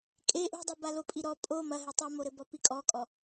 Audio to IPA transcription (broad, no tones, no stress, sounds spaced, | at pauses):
kʼ e ʔ ṳ dˤ i b a l o pʼ i ɾ ɔ pʼ o m ɐ ɦ e tˤ ɨ m o ɾ ɘ b ɔ p i kʼ ɔ kʼ ɔ